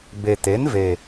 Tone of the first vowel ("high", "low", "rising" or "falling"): low